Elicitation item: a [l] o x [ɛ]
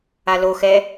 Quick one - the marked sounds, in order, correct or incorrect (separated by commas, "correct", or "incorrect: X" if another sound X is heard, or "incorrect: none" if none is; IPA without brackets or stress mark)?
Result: correct, correct